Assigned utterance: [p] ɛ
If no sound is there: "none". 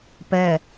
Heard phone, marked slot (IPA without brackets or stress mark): p